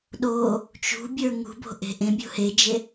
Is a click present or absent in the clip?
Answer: absent